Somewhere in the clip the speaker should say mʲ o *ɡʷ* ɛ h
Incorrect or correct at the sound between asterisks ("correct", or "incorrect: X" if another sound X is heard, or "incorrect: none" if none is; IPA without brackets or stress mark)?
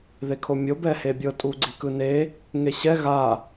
incorrect: b